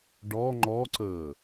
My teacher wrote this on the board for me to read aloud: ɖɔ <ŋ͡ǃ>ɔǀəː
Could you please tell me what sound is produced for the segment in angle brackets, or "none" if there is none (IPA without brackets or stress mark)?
ŋ͡ǃ